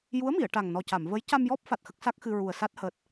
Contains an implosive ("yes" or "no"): no